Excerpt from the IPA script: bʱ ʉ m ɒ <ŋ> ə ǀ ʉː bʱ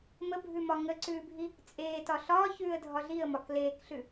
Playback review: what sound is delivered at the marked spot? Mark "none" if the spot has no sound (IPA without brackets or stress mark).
ŋ